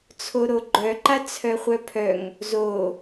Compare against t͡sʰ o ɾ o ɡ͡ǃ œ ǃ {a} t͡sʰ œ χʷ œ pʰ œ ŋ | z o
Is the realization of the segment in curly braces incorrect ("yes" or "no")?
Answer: no